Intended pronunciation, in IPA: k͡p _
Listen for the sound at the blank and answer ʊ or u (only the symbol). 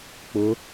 ʊ